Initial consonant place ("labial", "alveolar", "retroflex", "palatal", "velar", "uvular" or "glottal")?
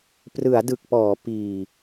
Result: labial